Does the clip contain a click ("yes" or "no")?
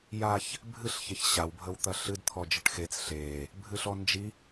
no